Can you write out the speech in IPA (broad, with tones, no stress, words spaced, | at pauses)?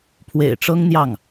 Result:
pʰwḛ˨˩ɪ̯ʈ͡ʂɤ˥ŋn̪jɑ˥˩ŋ